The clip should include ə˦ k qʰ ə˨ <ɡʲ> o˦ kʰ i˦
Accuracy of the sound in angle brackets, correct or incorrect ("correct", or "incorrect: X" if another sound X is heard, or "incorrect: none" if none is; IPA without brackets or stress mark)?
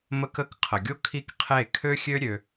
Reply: correct